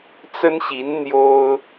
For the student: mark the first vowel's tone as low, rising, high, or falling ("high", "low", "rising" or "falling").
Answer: high